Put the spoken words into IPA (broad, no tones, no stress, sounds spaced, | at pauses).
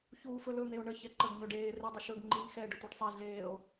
ç uː f ɵ l ɵ n̪ e o̯ ɳ ə ç ɛ ǃ ə ɡ ɲ ɵ ɖ eː r e dˤ ə ʃ ɵ ɡ ŋ͡ǃ i n x ɛ ɖ ə tʷ e ɖ sˤ e ɮ eː o̯